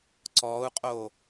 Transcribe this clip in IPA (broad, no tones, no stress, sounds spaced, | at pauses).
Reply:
ǀ ɔː u̯ qʼ oː